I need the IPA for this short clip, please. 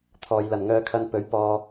t̪ʰɔː˨˧jlɐ˨˩nŋœː˧kʰɐ˧n pɵ˨˥ɥpɔː˧

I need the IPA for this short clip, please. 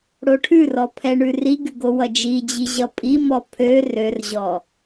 ɽoʈʰʉrɔ pʰɛɳʉriɡʉ ɡowʌd͡ʒid͡ʑi ʑʌpʼimɔ pʰø rørʑɔ

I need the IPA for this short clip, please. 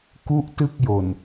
ku˥˩ʔtɯ˥˩k̚jo˨˩n

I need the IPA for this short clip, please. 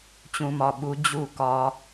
t͡ɕũ˨mɒ˨ ɓu˨˦d͡ʑu˦˨kɒ˦

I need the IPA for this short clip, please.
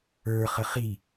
ə˞ χəχi

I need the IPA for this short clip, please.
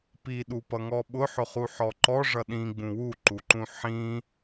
piɗupʌŋɔ ɓʊħʊχu ħɔǃɔ ʐʌɗĩ ɡ͡bũwuǃuǃũ ħĩ

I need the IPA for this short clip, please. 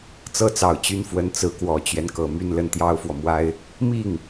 t͡sɤ˥t͡sɑ˨˩ʊ̯t͡ɕy˥nfwə˧˥n t͡sɹ̩˧˥kwɔ˨˩t͡ɕɥɛ˦n kɤ˨˩my˥˧n lə˥˩nt̪jɑ˥ʊ̯fwɔ˨mwa˥ɪ̯ | mi˥˩ŋ

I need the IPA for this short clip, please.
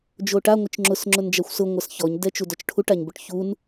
d͡ʒoʈa ŋʷɪt͡ʃŋ͡ǁʊs ŋ͡ǁʊnd͡ʒaxʷsʊ ŋʷasçɔɲ dɛt͡ʃudɔt͡ʃʈʰuʈ aɲbʊʈçun

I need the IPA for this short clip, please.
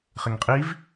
χɪŋqʼiv

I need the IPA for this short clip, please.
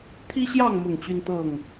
t̪ʰi˦ɕjɑ˥˨ŋ mʊ˥˨ŋt͡ɕy˦nt̪ɤ˥˨ŋ

